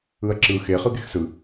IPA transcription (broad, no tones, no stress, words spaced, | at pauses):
ɯɐ̯ǁɯ xe χɯɡexsɯ